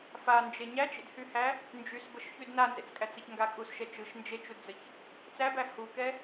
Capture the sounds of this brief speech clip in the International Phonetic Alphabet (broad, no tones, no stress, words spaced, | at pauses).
fand͡ʒe ɲæt͡ʃḛdhyhæ | nd͡ʒysbəʃçyd nanzḛt͡skʼæt͡səç ŋɡakʼusʃɛ t͡ʃɯʃ nd͡ʒet͡ʃudd͡zəç | t͡sæbæ hukɛ